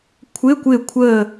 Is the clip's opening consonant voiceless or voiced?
voiceless